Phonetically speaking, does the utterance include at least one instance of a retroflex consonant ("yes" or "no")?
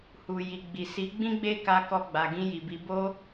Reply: no